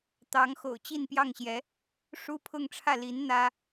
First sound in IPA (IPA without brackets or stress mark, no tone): t̪